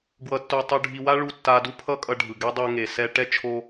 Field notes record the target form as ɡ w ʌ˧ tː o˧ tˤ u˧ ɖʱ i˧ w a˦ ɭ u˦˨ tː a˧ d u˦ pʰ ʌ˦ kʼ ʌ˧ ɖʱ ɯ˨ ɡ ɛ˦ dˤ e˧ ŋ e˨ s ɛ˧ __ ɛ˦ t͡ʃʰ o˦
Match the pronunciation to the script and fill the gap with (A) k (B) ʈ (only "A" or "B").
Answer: B